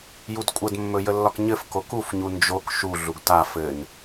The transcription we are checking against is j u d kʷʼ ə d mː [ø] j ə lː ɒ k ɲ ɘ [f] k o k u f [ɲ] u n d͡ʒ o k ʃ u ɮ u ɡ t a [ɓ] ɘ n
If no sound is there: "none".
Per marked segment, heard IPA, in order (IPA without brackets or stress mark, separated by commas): ɵ, f, ɲ, f